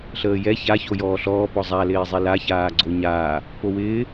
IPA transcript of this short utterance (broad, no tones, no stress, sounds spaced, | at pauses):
ɬ əː j ɛ ç a ç o j ɔː ɬ ɔː p ɔ zˤ a l ɪː zˤ i l a ç aː ɡ͡ǀ o ɲ aː | p o w ɪː